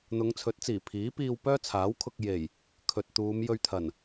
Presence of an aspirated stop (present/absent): present